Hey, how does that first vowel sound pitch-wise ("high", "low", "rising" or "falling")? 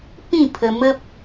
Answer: falling